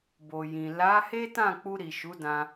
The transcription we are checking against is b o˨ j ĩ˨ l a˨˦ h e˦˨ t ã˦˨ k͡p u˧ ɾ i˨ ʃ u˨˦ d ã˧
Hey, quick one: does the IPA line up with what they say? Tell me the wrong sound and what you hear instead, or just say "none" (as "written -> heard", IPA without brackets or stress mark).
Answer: e˦˨ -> e˦